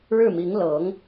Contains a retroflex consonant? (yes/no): yes